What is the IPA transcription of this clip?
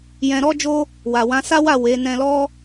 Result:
jɛ̃˧ɾɔ˦d͡ʒo˦ | wa˨wã˨˦ sa˦wa˦˨ we˨˦ nɛ̃˧lɔ˦

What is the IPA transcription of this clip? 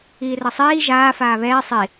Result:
iːrʌsˤiː ʒaː faːβɛː sˤi

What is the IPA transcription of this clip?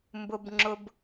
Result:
mbʊ˦bŋ͡ǁʊ˦b

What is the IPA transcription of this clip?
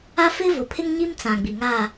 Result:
a˦fɪ˦ vʊ˨pʰɪ˦ŋɲi˦m t͡sã˨ɡ͡bi˨ŋaː˦˨

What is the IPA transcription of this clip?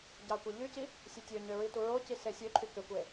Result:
ɟɑkʷeʎyci | sʲotʲøɲø ɹituɹoci sesʲøǃʰy køkʷe

